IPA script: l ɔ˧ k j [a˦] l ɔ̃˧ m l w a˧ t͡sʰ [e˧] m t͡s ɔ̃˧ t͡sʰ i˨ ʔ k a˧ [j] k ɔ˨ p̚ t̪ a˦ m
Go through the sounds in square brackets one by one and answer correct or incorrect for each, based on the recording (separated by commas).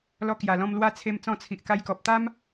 incorrect, correct, correct